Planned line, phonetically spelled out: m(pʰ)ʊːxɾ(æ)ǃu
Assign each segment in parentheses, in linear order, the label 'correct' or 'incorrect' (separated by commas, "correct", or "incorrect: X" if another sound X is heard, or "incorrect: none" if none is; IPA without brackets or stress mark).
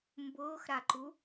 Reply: incorrect: b, incorrect: a